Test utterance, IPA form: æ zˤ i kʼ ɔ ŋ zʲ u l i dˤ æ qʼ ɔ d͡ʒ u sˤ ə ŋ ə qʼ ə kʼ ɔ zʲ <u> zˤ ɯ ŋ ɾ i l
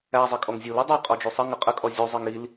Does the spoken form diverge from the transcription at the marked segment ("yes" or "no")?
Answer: no